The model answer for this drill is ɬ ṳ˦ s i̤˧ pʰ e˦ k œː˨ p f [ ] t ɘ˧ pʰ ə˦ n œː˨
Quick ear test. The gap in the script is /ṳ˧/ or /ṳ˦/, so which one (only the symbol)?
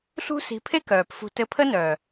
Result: ṳ˧